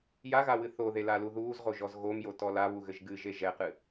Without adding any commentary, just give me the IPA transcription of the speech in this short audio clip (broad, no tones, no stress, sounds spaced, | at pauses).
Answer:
j a ɣ a w ɨ θ o ð e l a l u ð uː z ʁ o ʒ ɔ z ɣ o m j o t ɔ l a β u ɣ ɘ ʒ ɡ ɨ ʒ e ʒ ɛ q ɨ